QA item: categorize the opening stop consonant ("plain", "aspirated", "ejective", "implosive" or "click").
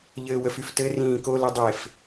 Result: plain